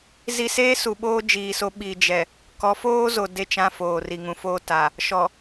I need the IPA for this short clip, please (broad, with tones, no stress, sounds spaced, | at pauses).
z i˦ s eː˦ s u˨ ɓ oː˦ d͡ʒ iː˨ s o˦ ɓ i˨ d͡ʒ ɛ˨ | k ɔ˨˦ f oː˦ z o˨ d e˦ t͡ʃ ã˦ f oː˨ r i˨ ŋ ũ˨ f oː˦ t a˨ | ʃ ɔ˨